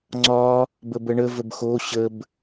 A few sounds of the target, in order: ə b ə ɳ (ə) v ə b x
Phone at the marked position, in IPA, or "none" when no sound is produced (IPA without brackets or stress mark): ə